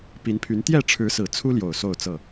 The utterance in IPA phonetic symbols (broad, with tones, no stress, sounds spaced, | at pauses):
p i˨˦ n pʰ y˨˦ n t̪ j ɛ˥˨ ʈ͡ʂʰ ɻ̩˨˦ s ɹ̩˨˩ t͡sʰ u˦ l j o˨˩ ʊ̯ s o˥˨ ʊ̯ t͡s ɤ˥˨